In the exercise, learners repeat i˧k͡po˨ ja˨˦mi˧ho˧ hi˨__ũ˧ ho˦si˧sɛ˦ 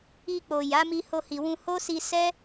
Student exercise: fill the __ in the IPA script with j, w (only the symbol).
w